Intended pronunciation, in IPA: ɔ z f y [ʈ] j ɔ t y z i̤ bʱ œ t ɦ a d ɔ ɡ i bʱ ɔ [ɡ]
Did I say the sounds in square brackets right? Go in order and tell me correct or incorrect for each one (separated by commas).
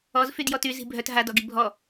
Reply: incorrect, incorrect